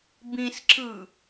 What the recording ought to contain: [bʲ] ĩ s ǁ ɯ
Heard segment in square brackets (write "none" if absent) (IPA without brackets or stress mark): b